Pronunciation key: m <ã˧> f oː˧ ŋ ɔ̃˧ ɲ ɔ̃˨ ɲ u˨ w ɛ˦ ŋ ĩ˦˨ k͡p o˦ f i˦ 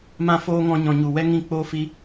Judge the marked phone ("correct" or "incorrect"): correct